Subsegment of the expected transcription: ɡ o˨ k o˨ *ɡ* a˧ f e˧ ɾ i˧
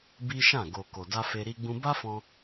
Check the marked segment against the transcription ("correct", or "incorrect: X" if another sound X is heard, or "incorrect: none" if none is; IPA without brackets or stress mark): incorrect: d